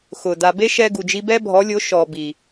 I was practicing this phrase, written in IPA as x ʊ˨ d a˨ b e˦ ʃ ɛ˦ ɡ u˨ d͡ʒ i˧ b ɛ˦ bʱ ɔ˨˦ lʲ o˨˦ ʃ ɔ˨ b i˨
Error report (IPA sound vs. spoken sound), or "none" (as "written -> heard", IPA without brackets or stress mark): none